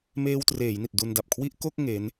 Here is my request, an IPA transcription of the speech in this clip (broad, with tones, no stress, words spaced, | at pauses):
meː˧wtreː˩˦jni˨˩t̚ du˧nda˨˩p̚kʰwi˥˩ʔ ko˥˩k̚ ŋe˦˥n